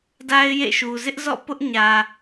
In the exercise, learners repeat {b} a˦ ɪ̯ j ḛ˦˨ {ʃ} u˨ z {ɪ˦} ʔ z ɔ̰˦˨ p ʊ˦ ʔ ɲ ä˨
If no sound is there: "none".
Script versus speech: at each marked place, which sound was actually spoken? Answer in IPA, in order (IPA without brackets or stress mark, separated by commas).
d, ʃ, ɪ˦